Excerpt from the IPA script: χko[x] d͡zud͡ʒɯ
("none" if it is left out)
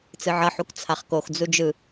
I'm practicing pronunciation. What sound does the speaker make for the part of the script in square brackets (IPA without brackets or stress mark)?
x